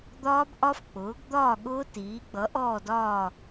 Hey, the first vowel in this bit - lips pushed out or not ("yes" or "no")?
yes